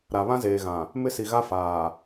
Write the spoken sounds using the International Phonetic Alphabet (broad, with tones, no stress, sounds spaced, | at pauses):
ɾ a˨ β ã˦ z eː˨ ɣ ã˨ | m ɪ˦ s i˨ ɣ a˦ f aː˨